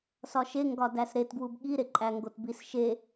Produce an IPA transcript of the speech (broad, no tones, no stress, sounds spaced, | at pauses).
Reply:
s ɒ ʃ e ŋ ɡ ɒ d æ s ɾ e t ɡ w u b ɠ i ɾ e ǃʼ æ ŋ ɡ o t b i s ʃ e